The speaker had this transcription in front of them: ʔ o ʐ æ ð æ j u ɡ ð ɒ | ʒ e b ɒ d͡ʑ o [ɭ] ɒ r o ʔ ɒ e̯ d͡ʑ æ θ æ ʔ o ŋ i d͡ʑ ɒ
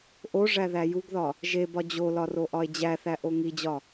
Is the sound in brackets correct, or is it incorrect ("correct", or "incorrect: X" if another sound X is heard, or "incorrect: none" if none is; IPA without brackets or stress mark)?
incorrect: l